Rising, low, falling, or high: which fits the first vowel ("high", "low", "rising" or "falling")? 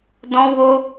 high